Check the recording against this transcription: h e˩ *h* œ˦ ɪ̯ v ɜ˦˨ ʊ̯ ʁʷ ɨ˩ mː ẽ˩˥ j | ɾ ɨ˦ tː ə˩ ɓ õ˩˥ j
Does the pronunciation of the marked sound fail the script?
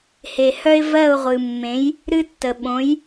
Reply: no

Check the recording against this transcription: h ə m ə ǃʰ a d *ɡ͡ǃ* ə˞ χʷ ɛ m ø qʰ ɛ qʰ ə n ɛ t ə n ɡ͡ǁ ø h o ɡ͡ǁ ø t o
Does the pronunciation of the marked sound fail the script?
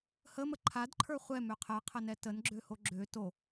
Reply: yes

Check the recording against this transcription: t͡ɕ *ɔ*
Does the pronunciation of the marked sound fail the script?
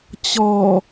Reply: no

